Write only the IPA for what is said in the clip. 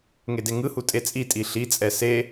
ŋedeŋɯhu tʼet͡sʼitʼi ɬit͡sʼɛ se

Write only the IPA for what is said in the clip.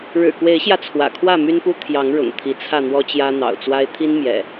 ɻɻ̩˨˩kwe˨˦ɪ̯ɕjä˧ t͡sʰwä̰˨˩kʰwä˥˨my˦npu˦ t̪ʰjɑ˨˦ŋ ɻʊ̰˨˩ŋ t̪ʰi˨˦t͡sʰä˥˨ n̪wɔ˦t͡ɕjä˦ n̪ɑ̰˨˩ʊ̯t͡swa˦ɪ̯ t̪ʰi˦nmjɛ̰˨˩

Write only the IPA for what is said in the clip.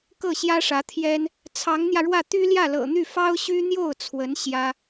kɤ˥˩ɕjä˥ʂä˧˥t̪ʰjɛ˥n | t͡sʰɑ˧˥ŋn̪jä˧ɻwä˥˩ t̪y˥ljä˥˩lɤ̰˨˩n̪y˥˩ fɑ˥ʊ̯ɕy˥n̪jo˥˩ʊ̯t͡sʰwə˧˥n ɕjä˥

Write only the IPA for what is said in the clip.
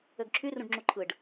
øɡǁʰy rũɖŋ͡ǁuǃʰɯɖ

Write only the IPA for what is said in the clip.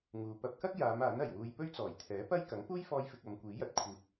ŋuː˨ pɐ˧p̚kɐ˥k̚ jaː˨˧m aː˨˥nɐ˨˩jwuː˧j pɵ˥ɥt͡sɔː˨˩jt̪ʰɛː˨˥pɐ˥j kɐ˨˥ŋ puː˥jfɔː˧jfɪ˨k̚ ɐ˨˧mkʷiː˨˥jɐ˨t̚ kʷʰiː˨t̚

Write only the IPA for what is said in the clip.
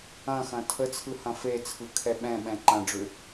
ɐ̃xɐ̃ tʰət͡sʰɯ hɐ̃fet͡sʰɯ kʰɛɓɛ̃ɓɛ̃ ǃɐ̃ɖ͡ʐʏ

